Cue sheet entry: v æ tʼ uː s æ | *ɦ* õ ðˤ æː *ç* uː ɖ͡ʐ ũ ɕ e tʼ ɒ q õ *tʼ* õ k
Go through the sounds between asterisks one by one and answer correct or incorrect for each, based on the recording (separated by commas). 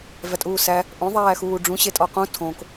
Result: incorrect, incorrect, incorrect